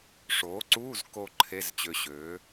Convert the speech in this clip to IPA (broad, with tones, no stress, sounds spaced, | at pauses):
ʂ oː˩˥ ǀ uː˧˥˧ z k o˧ ǃʰ e˧˥˧ z t͡ɕ ø˧ ɕ øː˩˥